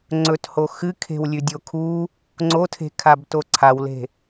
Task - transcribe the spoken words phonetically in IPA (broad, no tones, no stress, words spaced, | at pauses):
ŋ͡ǀɵtho xɨ kʰe̤wlʲʉdʲokʰu | ŋ͡ǀotʰe̤ kʰabtoǀʰawle̤